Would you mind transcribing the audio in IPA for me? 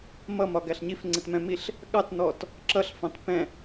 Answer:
m ʌ m ɒ ɡ æ ɬ ɲ i f ŋ͡ǀ ɪ t m ɛ̃ m i ɬ | ɠ ɑ t n ɔ t | ǁ ʌ ɬ f ɑ̃ t p ɛ̃

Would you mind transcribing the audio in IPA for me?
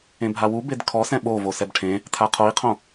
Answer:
ẽ bʱ a w u b e d kʰ ɔ s ɛ̃ ɓ o v o s ɛ b ʈʰ ẽ | tʰ a qʰ o i̯ qʰ õ

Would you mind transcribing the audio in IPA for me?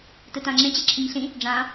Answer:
t ɯ t ã ŋ͡ǁ ẽ t͡ɕ ɛ ǁʰ ɪ ɲ ɬ ĩ | ɖ͡ʐ ã

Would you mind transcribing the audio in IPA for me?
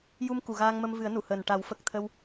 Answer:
j u˧ m k u˨˩˨ ɣ aː˧ ŋ m ə˧ m v ɨ˨˩˦ ə̯ n u˨˩˨ h əː˨˩ n ʈ a˨˩˦ w f ə˨˩ k̚ t̪ʰ ə˧ w

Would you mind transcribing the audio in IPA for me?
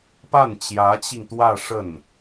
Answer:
p a˥˩ n t͡ɕ j ä˧˥ t͡ɕ i˧ ŋ t̪ w ä˥˧ ʂ ə˥˩ n

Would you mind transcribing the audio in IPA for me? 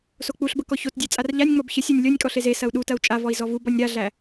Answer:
s o k͡p u ɬ b ə k ɔ ç o t dʲ æ t͡sʼ a r ʎ a nʲ ŋ͡m ɔ b ç ə sʲ ɔ nʲ lʲ ɔ nʲ kʼ ɔ ɬ e z e s ɐ u̯ ɗ u t ɐ u̯ t͡ʃʼ a v ɔ i̯ z ɔ v u b ɔ nʲ ɾ a ɮ æ

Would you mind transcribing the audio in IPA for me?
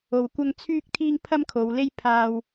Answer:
o˧ w kʷ ɐ˥ ŋ t͡sʰ yː˥ k̚ t̪ʰ iː˥ ŋ pʰ ɐ˥ m kʰ o˨˧ w l e˥ j pʰ aː˥ w

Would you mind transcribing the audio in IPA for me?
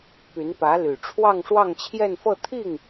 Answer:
p y˧˥ n p ä˧˥ l y˨˩ ʈ͡ʂʰ w ɑ˥˧ ŋ ʂ w ɑ˥˧ ŋ t͡ɕʰ j ɛ˥˧ n f ɤ˥˧ t̪ʰ i˥˩ ŋ

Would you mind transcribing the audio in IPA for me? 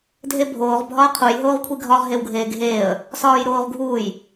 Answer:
dʱ e bʱ oː ʁ bʱ ɒ ə̯ qʰ u j ɦ oː ʁ kʷʰ i ɡʱ ɒ ʁ ɦ e w ɡʱ eː ɡʱ eː ə̯ | s ɒː j ɾ oː ʁ ɡʱ uː j

